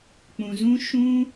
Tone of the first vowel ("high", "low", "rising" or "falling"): low